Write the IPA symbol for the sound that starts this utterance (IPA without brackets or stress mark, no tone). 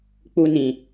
k͡p